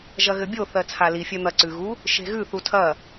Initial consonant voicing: voiced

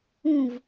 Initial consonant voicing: voiced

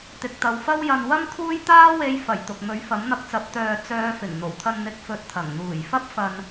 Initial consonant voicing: voiceless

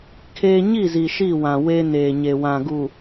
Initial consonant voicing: voiceless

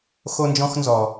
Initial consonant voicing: voiceless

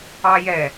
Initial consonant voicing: voiced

